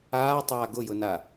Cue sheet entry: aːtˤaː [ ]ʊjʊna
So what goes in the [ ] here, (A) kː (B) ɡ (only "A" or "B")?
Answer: B